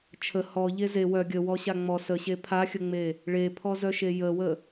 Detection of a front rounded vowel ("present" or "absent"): present